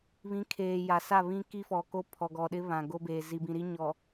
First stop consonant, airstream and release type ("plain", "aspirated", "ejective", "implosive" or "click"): aspirated